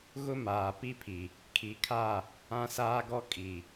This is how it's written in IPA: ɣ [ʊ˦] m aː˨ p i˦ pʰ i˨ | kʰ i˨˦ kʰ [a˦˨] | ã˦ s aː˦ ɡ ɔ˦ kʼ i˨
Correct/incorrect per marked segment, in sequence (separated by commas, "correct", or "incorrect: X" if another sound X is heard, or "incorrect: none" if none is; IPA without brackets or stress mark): correct, correct